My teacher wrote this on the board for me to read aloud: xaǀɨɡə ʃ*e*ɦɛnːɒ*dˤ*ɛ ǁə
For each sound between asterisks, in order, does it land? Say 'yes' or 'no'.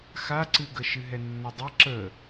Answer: no, yes

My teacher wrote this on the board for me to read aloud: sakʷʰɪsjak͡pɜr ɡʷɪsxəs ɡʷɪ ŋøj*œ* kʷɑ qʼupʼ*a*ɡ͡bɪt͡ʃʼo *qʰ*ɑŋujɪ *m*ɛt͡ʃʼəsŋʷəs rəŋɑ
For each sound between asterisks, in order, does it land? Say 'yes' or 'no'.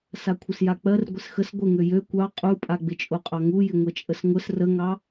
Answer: no, yes, no, no

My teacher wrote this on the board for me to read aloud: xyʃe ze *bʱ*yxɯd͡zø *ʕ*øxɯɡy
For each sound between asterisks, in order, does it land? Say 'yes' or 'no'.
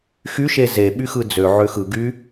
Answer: no, yes

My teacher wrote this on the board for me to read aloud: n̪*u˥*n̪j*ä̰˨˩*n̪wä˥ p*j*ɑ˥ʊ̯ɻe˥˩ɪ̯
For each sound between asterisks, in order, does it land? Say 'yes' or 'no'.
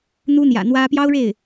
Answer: yes, yes, yes

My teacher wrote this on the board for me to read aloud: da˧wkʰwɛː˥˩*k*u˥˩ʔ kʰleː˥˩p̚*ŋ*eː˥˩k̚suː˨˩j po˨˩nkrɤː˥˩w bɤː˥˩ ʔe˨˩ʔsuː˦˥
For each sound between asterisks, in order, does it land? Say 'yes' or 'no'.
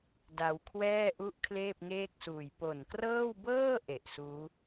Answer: no, yes

